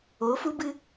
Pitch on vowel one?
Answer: rising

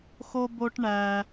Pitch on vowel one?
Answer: high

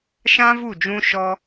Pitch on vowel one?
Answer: high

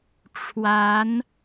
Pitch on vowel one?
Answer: rising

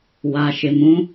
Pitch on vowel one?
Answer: low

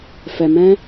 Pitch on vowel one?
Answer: low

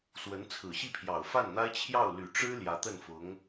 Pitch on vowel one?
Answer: rising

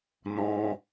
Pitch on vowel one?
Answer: high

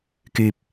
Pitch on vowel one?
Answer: low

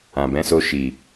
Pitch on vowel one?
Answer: low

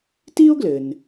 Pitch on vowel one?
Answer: high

